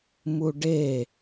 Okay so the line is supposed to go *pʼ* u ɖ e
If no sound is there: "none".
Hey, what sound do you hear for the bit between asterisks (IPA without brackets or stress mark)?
m